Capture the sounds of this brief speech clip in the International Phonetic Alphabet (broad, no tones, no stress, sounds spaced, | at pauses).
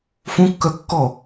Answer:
f ũ kː œ kː ɔ